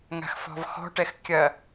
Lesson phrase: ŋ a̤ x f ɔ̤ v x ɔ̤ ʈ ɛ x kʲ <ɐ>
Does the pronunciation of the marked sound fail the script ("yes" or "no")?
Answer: no